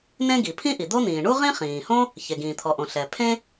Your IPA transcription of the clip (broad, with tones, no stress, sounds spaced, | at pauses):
n ẽ˥ ɡ i˩ pʰ ĩ˥ ʔ i˩ d̪ o˥ n̪ ĩː˩ ɳ u˥ ʁ ĩ˥ χ ĩː˩ h õ˥ | ç e˩ ɡ ĩː˩ t̪ʰ ɔ˩ ʔ õ˩ ɬ ɛ˩ pʰ ẽ˥